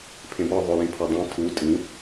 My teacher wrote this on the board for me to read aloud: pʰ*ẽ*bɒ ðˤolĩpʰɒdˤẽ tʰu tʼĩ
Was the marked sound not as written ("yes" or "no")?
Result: no